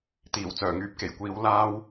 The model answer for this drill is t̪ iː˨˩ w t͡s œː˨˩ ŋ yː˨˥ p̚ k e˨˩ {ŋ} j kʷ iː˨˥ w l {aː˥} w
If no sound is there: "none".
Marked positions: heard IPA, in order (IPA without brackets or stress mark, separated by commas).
none, aː˥